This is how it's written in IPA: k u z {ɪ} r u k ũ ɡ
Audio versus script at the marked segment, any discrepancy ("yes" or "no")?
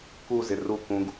no